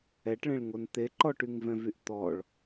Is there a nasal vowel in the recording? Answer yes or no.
yes